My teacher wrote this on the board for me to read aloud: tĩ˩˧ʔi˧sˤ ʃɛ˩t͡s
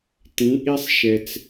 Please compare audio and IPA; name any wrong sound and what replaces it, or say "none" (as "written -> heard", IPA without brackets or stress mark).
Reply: none